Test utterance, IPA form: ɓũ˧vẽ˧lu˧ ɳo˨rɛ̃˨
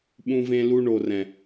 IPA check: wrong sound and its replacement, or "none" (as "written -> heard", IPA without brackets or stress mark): none